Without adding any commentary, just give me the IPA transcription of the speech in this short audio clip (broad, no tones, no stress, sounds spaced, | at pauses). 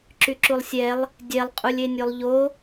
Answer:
ǁ y ǁ u lˠ sʲ ɛ lˠ | dʲ ɛ lˠ qʼ u lʲ e nʲ o lˠ ʎ o